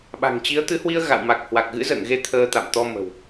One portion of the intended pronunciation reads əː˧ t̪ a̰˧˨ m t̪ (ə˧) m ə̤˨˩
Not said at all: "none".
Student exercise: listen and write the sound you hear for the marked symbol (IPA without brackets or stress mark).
ɔ˧